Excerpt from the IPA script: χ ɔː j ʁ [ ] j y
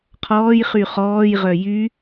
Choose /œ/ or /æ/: œ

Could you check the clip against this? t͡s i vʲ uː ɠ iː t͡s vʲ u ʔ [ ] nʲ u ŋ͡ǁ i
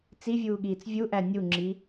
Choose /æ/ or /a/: æ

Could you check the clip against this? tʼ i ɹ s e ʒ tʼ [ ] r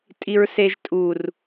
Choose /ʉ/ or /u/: u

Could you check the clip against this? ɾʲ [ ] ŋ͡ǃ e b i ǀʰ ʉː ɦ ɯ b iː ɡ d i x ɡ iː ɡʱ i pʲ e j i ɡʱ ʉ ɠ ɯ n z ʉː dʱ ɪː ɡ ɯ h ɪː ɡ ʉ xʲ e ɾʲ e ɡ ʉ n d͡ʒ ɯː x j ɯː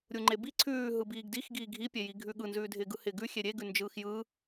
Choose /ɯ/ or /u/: u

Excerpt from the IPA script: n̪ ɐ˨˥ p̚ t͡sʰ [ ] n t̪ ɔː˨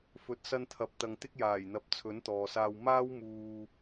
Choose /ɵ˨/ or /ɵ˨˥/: ɵ˨˥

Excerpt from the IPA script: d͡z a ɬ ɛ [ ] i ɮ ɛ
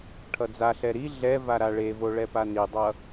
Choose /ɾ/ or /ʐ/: ɾ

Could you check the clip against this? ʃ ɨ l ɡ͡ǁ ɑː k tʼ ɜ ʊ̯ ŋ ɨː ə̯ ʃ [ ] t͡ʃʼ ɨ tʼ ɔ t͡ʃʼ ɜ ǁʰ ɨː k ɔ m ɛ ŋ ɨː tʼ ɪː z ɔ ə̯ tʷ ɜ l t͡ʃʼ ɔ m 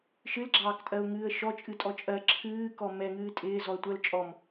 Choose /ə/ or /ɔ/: ɔ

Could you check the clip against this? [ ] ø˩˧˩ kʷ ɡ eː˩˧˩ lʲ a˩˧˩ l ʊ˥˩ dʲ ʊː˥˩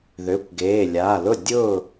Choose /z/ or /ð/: ð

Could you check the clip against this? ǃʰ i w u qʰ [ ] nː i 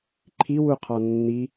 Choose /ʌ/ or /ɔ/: ɔ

